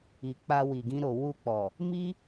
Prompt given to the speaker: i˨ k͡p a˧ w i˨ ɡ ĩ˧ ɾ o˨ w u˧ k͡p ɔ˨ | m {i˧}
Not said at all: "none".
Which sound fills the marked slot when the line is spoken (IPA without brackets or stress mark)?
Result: i˦